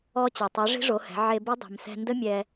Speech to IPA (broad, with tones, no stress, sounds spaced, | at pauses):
ɔ˧ t͡ɕ e˩ tˤ e˩˧ ʐ i̤˧˥ ʐ o˩˧ h ɛ̤˩˧ ʕ e˧ b i˧˥ dˤ i̤˩ m s ɛ̤˧ n d ə˥ mʲ ɛ˧